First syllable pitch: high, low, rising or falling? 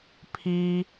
low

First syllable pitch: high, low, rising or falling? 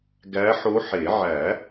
rising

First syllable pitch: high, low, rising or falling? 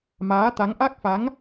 rising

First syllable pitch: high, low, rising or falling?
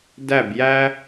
falling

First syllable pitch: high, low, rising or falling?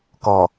low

